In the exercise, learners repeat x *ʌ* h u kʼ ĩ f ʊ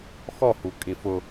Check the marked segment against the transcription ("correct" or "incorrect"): incorrect